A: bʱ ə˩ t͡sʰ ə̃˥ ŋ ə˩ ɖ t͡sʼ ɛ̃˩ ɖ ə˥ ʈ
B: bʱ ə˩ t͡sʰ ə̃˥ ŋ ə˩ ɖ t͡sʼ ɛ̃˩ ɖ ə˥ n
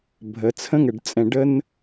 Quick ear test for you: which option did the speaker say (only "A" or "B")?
B